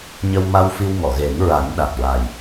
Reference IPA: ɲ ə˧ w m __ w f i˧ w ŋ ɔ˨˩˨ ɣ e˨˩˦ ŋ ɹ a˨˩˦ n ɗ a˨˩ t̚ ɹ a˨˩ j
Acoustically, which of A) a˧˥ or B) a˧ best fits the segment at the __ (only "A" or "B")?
B